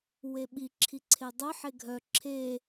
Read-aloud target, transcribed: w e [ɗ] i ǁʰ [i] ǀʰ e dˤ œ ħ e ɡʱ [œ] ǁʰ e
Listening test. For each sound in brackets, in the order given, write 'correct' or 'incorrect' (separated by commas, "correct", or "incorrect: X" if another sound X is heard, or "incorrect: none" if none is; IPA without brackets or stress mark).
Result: incorrect: ɓ, correct, correct